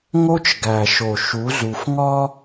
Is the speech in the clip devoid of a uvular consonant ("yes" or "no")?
yes